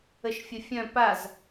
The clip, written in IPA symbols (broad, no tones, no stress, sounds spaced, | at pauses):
ə ʃ fʲ ə fʲ œ̃ p a z